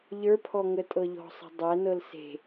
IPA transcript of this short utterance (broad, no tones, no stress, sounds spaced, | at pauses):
ʎ ə˞ pʰ ɔ ŋ ə tʼ ɤ ʎ ɔ̤ sˤ ə̤ dˤ æ n ɤ l s e̤